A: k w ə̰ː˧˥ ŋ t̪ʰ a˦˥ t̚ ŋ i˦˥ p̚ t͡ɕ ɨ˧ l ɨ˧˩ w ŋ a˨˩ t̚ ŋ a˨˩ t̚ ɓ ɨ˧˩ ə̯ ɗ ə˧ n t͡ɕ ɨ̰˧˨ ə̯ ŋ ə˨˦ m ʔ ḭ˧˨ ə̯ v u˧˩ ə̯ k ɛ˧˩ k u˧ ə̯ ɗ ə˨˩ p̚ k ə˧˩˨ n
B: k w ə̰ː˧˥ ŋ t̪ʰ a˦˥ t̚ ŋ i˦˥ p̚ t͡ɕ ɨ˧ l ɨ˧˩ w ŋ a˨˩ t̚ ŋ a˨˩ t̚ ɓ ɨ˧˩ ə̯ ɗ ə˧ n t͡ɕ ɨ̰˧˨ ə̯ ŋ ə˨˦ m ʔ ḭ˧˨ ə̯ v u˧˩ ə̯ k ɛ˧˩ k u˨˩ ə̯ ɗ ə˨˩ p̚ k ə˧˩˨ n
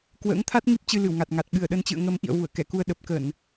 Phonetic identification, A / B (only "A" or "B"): A